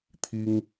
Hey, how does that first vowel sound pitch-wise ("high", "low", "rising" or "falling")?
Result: high